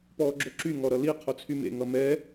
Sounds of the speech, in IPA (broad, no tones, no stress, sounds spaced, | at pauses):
p ɔː ɡ͡ǁ o ǁ y ŋ ɔ ɾ ʌ l i qʰ o t͡sʰ y m ḛ ŋ ʌ m ɛ